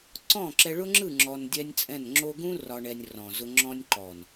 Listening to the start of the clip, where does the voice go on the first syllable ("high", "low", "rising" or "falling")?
falling